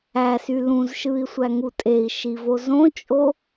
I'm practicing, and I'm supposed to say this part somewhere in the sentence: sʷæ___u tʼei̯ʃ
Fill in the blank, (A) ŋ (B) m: A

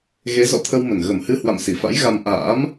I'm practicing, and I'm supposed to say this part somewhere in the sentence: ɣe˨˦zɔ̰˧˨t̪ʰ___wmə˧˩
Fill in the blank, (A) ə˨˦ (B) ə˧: B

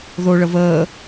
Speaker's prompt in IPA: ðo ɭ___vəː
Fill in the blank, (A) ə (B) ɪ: A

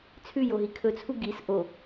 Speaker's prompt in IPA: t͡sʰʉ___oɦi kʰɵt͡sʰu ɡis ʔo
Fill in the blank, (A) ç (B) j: B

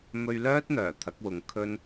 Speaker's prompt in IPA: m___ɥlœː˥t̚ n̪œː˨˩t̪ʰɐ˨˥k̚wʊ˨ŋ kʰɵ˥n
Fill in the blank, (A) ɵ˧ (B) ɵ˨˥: A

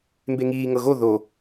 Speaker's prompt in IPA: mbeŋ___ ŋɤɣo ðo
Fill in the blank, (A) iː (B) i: A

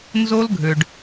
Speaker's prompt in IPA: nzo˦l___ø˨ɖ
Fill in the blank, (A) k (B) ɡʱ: B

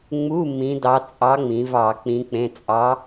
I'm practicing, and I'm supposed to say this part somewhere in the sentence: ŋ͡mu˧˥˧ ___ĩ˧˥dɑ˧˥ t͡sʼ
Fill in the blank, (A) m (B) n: A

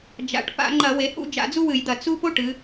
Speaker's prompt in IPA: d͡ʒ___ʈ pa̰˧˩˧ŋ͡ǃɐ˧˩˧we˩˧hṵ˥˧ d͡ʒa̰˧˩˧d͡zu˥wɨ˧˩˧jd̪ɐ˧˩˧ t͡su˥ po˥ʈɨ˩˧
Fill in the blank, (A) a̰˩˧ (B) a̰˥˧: A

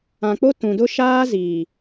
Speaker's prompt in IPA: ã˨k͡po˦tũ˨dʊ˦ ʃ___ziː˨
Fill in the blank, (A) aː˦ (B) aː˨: A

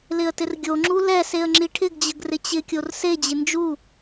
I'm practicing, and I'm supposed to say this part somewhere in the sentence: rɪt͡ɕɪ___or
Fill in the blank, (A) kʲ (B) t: A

